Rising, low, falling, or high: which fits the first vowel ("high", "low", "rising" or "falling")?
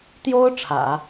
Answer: high